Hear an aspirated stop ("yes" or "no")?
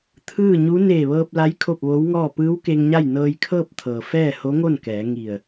yes